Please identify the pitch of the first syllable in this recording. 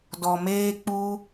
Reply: low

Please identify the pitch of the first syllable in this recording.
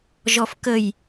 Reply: low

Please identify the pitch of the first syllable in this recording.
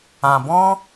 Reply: low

